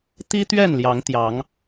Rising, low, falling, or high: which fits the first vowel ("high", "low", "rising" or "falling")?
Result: high